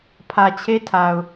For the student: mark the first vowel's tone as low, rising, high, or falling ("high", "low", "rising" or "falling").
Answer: low